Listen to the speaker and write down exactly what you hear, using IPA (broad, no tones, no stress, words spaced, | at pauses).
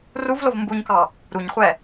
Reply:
ruvlov mbuɲkɑ | ɾuɲχʷɛ